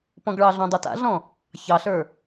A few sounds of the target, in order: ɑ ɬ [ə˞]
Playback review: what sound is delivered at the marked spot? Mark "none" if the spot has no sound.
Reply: ə˞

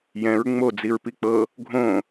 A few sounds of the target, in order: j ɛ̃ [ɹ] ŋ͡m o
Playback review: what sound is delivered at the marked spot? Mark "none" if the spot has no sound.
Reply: ɹ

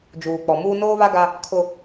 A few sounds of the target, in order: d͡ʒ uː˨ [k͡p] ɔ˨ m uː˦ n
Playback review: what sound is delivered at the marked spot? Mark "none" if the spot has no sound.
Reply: k͡p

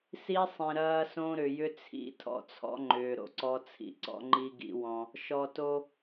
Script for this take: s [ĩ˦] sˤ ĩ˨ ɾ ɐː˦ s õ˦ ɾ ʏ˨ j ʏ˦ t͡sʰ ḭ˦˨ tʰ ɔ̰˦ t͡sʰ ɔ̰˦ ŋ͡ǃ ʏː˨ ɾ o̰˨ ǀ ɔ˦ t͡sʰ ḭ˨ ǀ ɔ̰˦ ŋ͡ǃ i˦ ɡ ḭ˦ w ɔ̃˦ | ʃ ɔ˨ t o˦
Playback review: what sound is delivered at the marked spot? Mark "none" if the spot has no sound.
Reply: i˦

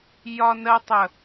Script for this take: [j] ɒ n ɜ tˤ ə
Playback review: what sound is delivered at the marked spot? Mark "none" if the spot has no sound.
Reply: j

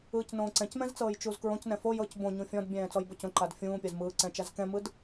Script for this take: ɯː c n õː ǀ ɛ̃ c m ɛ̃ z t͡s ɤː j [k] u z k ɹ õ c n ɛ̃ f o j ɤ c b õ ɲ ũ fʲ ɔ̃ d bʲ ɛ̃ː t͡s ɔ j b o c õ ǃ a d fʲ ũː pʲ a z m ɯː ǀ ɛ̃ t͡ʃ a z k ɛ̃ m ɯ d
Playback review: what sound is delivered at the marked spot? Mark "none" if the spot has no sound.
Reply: t͡ʃ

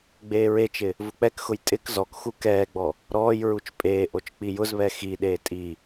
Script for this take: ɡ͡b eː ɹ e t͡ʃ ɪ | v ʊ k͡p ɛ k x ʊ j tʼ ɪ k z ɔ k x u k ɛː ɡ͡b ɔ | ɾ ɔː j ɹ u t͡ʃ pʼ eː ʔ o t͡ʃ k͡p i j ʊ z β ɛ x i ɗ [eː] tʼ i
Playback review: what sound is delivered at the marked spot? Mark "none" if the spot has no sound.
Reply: eː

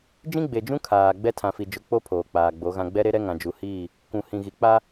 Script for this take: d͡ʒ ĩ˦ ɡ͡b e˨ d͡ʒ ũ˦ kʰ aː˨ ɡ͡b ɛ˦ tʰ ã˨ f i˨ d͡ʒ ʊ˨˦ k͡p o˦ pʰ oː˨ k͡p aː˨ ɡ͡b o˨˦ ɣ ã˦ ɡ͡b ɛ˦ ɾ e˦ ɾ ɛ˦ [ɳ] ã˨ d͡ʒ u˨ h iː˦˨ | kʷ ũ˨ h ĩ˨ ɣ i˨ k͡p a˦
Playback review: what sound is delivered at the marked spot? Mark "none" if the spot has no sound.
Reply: ŋ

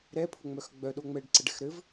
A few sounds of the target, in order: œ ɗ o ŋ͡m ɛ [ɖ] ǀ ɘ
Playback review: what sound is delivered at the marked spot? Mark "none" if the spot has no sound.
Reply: ɖ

